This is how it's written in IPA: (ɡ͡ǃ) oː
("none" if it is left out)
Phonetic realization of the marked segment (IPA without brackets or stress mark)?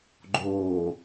ɡ͡ǃ